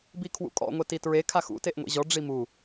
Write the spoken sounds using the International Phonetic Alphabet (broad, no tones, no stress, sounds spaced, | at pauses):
b i kʰ w ṵ kʼ ɔ̰ ŋʷ ɛ t i t ɹ e kʰ a x ṵ t e ʔ ŋʷ ḭ ʑ ɔ ɖ͡ʐ i m u